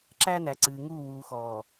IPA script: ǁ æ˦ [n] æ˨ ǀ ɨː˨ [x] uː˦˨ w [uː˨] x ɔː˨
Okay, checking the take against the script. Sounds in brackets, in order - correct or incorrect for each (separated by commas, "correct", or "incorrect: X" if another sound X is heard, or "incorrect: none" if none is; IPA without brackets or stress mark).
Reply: correct, incorrect: ŋ, correct